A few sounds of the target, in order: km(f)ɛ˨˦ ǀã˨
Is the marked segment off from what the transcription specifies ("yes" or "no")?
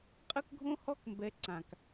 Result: yes